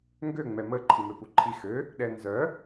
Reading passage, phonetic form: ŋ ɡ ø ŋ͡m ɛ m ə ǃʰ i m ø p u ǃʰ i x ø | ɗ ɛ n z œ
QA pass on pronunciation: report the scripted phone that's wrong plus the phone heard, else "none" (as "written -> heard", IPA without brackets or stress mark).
none